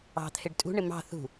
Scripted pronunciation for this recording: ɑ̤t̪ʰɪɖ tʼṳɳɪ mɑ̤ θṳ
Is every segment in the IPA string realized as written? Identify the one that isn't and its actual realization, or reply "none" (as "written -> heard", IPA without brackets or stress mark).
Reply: none